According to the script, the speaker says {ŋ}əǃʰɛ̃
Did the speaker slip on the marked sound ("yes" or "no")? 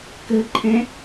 yes